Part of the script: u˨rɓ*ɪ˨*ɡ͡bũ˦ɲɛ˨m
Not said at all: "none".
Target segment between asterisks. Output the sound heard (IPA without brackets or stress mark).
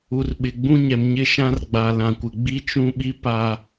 ɪ˨